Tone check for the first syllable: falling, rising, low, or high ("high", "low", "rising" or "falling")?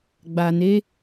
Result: low